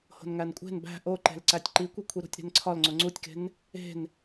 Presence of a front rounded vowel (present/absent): absent